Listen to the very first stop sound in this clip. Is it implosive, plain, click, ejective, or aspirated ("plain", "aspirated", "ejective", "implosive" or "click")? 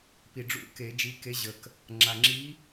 plain